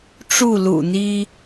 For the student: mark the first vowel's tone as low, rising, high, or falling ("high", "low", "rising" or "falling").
falling